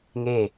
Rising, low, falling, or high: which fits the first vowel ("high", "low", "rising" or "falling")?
falling